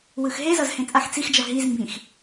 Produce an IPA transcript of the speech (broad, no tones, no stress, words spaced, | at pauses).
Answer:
wɯxɦezʌz hẽt͡sʼaxt͡sixd͡ʒʌ ɦizmbĩx